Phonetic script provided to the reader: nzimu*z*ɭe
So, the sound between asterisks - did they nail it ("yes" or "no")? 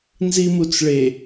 no